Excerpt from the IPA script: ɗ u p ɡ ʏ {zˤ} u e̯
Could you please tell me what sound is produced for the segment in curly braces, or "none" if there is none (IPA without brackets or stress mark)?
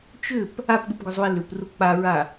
zˤ